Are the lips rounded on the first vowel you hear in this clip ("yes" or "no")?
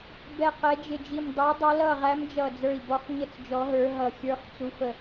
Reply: no